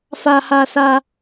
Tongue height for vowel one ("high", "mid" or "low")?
low